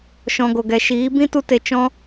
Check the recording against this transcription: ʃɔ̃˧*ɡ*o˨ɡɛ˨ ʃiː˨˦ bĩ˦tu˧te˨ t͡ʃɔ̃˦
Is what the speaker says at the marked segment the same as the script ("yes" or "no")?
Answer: yes